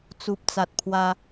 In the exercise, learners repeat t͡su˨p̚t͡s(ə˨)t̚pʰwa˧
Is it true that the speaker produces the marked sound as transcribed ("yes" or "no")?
no